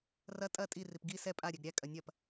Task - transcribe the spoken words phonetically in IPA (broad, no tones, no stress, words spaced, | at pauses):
rɐ tʼɐ tʼirip ɡi sɛ pʼa ɾʲɛɡɾʲækʼɐ nʲɐp